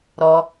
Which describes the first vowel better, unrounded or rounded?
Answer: rounded